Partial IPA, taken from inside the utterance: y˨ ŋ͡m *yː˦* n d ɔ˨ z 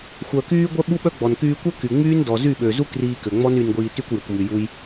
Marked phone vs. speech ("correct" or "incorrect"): correct